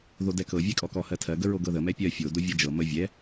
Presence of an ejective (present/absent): present